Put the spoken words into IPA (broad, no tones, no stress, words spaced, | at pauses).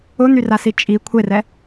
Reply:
ʊn̪yrasi t͡ʃʼi kʷʰerɛ